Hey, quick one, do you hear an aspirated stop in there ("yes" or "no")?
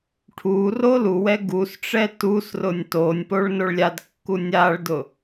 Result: yes